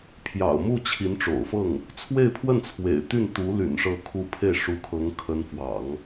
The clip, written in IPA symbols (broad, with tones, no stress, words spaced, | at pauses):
pʰjɑ̰˨˩ʊ̯mu˥˩ t͡ɕʰi˧˥nʈ͡ʂo̰˨˩ʊ̯fɤ˥˩ŋ | t͡sʰwe˥˧ɪ̯pʰwə˥˩n t͡sʰwḛ˨˩ɪ̯t̪y˥˩nt̪u˧˥ ly̰˨˩nʂɤ˧˥kʰu˧˥ pʰe˥˩ɪ̯ʂu˧˥kʰɤ˧˥ŋ kʰə˧˥nfwɑ̰˨˩˦ŋ